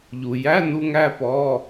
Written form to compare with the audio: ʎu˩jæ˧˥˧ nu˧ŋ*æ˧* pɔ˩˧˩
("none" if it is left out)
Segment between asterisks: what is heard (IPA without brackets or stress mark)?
æ˧